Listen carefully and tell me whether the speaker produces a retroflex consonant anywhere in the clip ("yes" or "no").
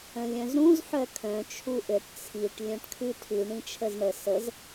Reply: yes